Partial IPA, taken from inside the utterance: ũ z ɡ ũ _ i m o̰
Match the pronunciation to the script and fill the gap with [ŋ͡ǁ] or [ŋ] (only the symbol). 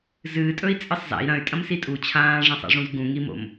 ŋ